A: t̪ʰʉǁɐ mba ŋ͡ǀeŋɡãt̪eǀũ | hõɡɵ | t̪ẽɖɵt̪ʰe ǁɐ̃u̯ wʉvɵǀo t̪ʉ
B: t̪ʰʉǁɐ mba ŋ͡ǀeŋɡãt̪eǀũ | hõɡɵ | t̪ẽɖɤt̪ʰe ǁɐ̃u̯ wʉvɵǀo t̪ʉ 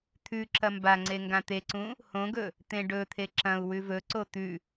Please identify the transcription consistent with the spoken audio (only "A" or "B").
A